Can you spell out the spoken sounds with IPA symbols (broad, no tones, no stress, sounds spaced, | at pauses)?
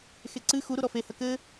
x e ǀ ɨ x u ɾ u ɾ ɔ f e h ɐ k ɘ